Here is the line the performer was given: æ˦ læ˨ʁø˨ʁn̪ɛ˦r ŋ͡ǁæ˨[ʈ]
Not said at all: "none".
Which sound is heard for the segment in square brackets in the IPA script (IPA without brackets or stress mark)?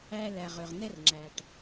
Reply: ʈ